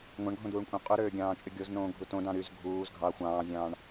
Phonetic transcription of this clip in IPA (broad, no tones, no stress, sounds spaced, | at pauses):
ŋʷ ɑ̃ ɳ ɡʱ õ d̪ uː ɳ kʷʼ ɑ̃ qʼ u ɾ øː ɡʲ ɑ̃ː t͡ʃʼ y ɡʲ o z n õː ɡʱ u t õ d ɑ̃ ɾ y z ɡʱ uː z ɡʱ ɑ xʷ ɑ̃ː zʲ ɑ̃ː ɳ